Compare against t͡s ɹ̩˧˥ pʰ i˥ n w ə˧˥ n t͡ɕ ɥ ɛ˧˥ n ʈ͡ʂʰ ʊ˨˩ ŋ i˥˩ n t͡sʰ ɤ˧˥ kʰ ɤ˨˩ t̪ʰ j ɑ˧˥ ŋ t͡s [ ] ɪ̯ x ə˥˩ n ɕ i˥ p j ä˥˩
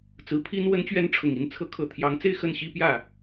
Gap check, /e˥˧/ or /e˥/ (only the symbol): e˥˧